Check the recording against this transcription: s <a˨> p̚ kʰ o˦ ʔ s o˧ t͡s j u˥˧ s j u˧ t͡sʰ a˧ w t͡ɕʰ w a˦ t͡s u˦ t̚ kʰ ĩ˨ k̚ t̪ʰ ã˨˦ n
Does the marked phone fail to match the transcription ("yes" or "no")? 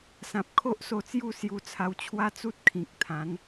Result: yes